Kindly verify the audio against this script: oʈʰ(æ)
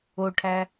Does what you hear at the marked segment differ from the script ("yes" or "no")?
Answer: no